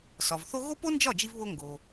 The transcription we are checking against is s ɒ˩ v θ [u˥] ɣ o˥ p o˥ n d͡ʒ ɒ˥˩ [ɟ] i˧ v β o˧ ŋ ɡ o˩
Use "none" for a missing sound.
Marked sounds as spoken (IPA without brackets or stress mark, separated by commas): o˥, d͡ʒ